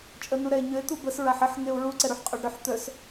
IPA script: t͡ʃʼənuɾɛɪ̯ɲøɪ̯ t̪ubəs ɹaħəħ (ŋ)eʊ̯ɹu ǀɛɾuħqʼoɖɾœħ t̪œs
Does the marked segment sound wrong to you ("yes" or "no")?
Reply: no